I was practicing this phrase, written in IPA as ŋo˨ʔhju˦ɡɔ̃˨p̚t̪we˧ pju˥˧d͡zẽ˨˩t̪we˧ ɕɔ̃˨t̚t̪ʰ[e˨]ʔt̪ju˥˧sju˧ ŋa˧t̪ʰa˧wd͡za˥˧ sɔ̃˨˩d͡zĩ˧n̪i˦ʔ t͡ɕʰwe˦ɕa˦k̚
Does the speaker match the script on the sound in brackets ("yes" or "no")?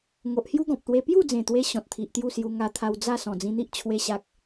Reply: no